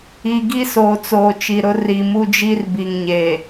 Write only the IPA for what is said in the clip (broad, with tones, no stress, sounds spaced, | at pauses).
i˨ ɡ i˦ s oː˨ t͡s oː˨ t͡ʃ i˨ ɾ ʊ˦ r i˨ m u˦ d͡ʒ i˦ r b i˨ ŋ ɲ eː˨